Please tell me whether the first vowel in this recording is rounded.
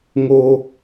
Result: yes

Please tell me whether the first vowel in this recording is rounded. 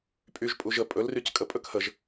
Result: yes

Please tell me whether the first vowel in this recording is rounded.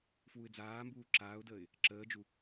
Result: yes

